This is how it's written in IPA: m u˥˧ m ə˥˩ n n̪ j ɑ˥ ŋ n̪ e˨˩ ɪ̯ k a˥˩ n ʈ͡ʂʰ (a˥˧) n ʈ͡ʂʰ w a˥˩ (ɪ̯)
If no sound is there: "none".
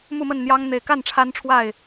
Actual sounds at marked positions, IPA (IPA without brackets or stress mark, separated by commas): a˥, ɪ̯